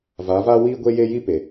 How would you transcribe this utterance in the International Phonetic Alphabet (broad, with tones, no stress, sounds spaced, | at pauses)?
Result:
v a˨˦ v aː˦ w iː˦ ɡʷ e˦ j e˦ j i˦ p e˨